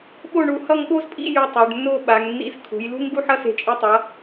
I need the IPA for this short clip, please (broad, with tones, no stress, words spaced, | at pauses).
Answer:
ɓo˥˧ɳu˧ hʌ˥˧ŋɠo˥zpʼḭ˥˧ ju˧ tˤo˩˧ɖnːo˥˧ɓa˩˧ŋ nːḭ˧z kʰṳ˩˧jlṳ˥ŋɡu˥˧ħʌ˥ se̤˧˩t͡ʃʼi˧tˤʌ˩˧